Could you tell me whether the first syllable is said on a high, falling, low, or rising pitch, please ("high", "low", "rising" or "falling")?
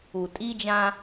low